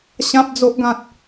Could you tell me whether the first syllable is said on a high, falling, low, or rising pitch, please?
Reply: high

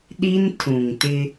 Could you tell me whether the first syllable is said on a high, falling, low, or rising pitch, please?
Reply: high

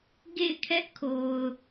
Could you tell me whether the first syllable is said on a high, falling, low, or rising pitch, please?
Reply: falling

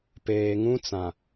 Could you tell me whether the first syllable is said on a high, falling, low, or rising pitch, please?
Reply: low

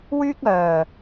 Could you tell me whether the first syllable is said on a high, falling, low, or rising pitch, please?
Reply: high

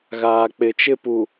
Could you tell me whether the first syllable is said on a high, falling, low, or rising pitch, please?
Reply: low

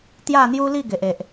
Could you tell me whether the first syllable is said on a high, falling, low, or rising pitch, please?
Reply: falling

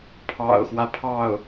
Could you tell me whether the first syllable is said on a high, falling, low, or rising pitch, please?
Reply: low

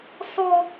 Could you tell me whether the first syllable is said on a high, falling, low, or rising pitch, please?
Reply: high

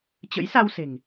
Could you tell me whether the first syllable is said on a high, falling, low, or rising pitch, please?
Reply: rising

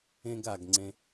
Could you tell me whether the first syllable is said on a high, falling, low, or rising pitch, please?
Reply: high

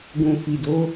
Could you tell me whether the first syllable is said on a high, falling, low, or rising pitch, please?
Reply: low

